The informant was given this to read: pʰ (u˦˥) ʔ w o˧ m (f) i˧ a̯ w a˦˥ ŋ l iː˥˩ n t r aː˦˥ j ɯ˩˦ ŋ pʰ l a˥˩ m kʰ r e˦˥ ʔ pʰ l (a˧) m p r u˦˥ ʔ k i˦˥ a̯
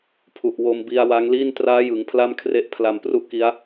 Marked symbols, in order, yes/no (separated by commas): no, no, yes